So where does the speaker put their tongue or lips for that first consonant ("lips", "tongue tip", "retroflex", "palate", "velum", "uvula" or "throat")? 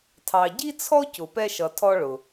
tongue tip